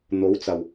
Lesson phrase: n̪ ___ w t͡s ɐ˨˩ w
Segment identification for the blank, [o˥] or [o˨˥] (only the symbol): o˨˥